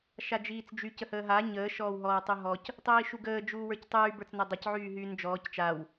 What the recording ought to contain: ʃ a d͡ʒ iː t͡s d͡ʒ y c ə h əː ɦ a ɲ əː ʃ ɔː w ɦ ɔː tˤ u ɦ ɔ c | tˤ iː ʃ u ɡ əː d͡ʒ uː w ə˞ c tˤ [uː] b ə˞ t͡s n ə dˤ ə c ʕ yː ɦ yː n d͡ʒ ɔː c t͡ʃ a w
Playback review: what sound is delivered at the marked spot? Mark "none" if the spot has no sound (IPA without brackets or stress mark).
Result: yː